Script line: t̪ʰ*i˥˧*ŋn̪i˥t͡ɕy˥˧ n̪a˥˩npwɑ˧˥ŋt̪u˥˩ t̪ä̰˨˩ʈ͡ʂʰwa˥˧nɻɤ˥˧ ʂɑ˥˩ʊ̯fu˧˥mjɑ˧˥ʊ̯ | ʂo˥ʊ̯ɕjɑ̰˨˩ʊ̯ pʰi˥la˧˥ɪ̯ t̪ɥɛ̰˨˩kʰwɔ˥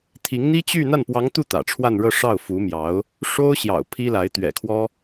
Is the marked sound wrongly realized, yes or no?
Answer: yes